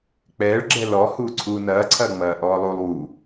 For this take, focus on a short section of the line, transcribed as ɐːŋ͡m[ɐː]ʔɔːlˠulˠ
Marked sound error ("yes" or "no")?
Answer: no